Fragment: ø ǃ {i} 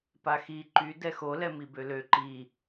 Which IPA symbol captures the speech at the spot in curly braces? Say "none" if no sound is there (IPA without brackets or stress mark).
i